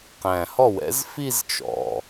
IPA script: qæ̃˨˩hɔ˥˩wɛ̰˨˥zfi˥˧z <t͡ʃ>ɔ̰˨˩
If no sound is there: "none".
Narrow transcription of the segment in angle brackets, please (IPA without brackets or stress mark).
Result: t͡ʃ